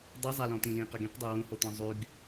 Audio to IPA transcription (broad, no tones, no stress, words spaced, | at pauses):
dˤizˤalɔ̃t̪ĩ lĩqəɡĩqdˤø wũhot̪ɔ̃ zˤyɡ